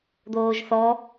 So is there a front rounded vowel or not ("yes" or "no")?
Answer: no